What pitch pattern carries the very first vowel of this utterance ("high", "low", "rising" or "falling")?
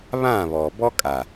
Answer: falling